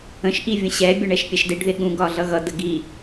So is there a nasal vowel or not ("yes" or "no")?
yes